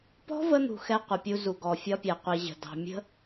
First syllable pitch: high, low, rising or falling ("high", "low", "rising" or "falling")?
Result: high